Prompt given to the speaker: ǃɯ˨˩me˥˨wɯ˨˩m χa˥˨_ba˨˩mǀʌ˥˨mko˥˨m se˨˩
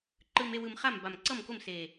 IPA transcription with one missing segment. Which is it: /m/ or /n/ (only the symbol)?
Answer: m